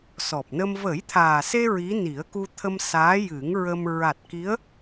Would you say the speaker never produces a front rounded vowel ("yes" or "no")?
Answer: yes